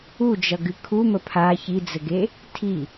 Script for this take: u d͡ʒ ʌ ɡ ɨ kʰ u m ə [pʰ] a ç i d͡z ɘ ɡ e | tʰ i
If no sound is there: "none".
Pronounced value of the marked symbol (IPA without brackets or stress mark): pʰ